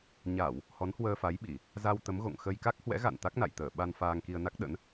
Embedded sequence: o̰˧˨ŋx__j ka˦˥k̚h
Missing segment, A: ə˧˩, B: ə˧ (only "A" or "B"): B